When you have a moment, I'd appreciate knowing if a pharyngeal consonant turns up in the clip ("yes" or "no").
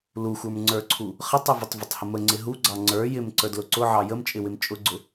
yes